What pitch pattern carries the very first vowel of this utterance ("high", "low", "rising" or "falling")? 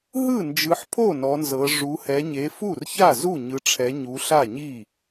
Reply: falling